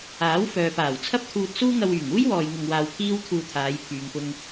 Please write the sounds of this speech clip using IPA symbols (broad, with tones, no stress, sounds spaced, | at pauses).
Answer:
aː˨˥ w f œː˨ p aː˨˩ w t͡sʰ ɐ˥ p̚ t̪ʰ uː˧ t̚ s uː˥ ŋ ɐ˧ w yː˨˩ ŋ uː˥ j w ɔː˨ j ŋ ʊ˧ ŋ w aː˧ w kʰ iː˥ w t̪ʰ uː˧ t̪ʰ aː˨˧ j pʰ yː˨ ŋ p ʊ˧ ŋ